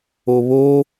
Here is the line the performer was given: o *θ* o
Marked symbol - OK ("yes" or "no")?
no